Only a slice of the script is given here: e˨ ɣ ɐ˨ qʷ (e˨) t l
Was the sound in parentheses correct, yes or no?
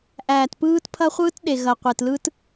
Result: yes